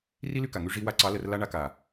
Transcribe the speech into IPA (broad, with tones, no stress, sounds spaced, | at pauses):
r i˦ l y˧ k a˨ ŋ y˧ ʐ i˧ w a˧ ǀ ɑ˨˦ l ə˧ r l a˦ ɳ a˧ k a˨